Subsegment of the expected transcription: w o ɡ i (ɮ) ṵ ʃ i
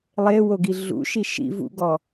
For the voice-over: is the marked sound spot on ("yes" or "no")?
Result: yes